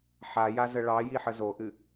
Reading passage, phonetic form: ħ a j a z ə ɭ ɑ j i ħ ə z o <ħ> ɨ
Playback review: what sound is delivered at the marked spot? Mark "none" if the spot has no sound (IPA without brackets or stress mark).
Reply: ʔ